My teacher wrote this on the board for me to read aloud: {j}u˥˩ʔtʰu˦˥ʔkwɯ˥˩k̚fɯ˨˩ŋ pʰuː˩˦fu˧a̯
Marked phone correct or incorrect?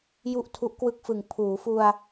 correct